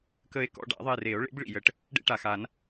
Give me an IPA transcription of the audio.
k ə˦ e̯ k ɔ̰˦ ɖ a̰˨˩˦ ðˤ e˦˨ r e˨˩˦ o̯ ɭ ḛ˨˥ b ɭ ḭ˨˩ j ə˨˩ ʈ | ɖ ḛ˦ ʈ a˨˩ x a˨˩˦ n

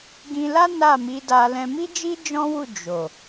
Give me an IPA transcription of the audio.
ɡ ĩ˧ l a˦ n a˦˨ m i˨˦ d a˧ l ɛ̃˧ m i˦ d͡ʒ i˦ d͡ʒ ɔ̃˦ w u˦˨ d͡ʒ o˨

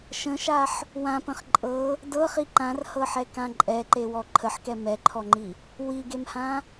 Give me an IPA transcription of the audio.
ʃ ə̃ ʃ a ħ | w ã p ə̃ χ ǃʼ ɤ | d ɤ χ i ǃ ã r h ɤ ħ ɛ k ã ǃʼ ɛ ǃ e w ɔ ǃʰ ə ħ k ɛ m ɛ ǃʰ ɔ ŋ͡ǃ i | w i ɡ e m h ã

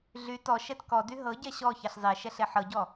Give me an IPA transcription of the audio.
ɮ y t ɔ ʃ ɛ t k ɔ d y ɦ ɤ ɟ ɛ ɕ ɔ ç ɛ ɬ zˤ e ʃ ɛ ɬ e ħ ɤ ɟ ɔ

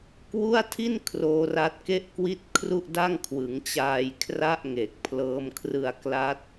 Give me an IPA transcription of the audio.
k w u˥˩ a̯ tʰ i˥˩ n kʰ r oː˦˥ r a˦˥ t̚ k e˥˩ ʔ k w i˥˩ t̚ kʰ r u˥˩ ʔ d a˥˩ ŋ kʰ w ɯ˩˦ ŋ t͡ɕ aː˧ j kʰ r a˥˩ ʔ ŋ e˨˩ k̚ pʰ l ɤː˦˥ m kʰ r ɯ˧ a̯ k l a˦˥ t̚

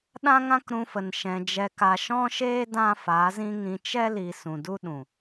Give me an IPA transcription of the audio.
ɗ ã˦ ŋ ã˦ k ɾ ũ˧ f ə˨ n ʃ ɛ̃˨ d͡ʒ ɛ˨ k a˨ ʃ ɔ̃˦ ʃ eː˦ d ã˦ f a˨˦ z ĩ˦ ŋ ĩ˧ t͡ʃ ɛ˦ l i˨ s ũ˨ d u˦ ɗ ũ˨

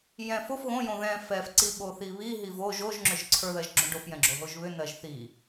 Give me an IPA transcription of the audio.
j ɛ̃ f o f ɣ õ j õ ð ɛ̃ f ɛ f ǀ i ɓ o θ i β i ɦ i v o ʒ o ʒ ŋ͡ǁ ʏ ʒ ǀʰ ə˞ ð ɜ ʒ ɡ͡ǁ õ ɖ o f j ɛ̃ ɡ͡ǁ o ɦ o ʒ β ʏ n ɜ ʒ θ i

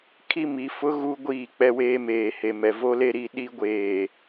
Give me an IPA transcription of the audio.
kʰ i˦ m i˨˦ f ʊ˦ ɣ u˦ ɡʷ iː˦˨ k͡p ɛ˦ w eː˦ m eː˨ h e˨ m ɛ˨ v o˦ l e˦ ɾ i˦˨ ɗ i˦ ɡʷ eː˨

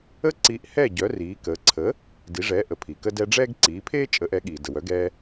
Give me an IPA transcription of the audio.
ə˥ ǀ iː˧ ʔ h ɛ˥˩ ɟ œ˩˥ r iː˩˥ k əː˩˥ ǀʰ ə˩˥ | d i˩˥ ʐ ɛ˩˥ ʔ ə˩ pʰ i˩ k ə˧ d ɛ˧ ɖ͡ʐ ɛː˥ ɡ ǀ iː˩˥ pʰ eː˥ t͡ʃʼ ə˩˥ ʔ ɛ˩˥ ɠ iː˩ d ə˩ w œ˩˥ ɡ ɛː˧

